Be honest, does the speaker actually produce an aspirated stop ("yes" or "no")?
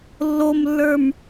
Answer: no